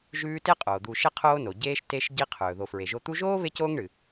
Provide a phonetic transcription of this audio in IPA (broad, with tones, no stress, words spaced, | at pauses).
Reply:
ʒʉː˦te˥ qʼoː˩d̪u˨ʃe˦ qʰoː˦no˩ ɟeː˦ʃ te˦ʃ ɟi˦ qʰɵː˩ ðo˨fɹe˨ʒo˦ t̪u˦ʒoː˥ βe˥coː˥ŋ ɳɨ˨